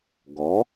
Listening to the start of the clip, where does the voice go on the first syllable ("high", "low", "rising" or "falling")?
rising